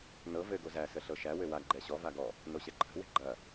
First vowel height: mid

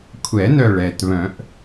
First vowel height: mid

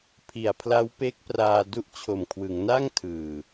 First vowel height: high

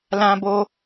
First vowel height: low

